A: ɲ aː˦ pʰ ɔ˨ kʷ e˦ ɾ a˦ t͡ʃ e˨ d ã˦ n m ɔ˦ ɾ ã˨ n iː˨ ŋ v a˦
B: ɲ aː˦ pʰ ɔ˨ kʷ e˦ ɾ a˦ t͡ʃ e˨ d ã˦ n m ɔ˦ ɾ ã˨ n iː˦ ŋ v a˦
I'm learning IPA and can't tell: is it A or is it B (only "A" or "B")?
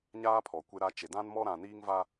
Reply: B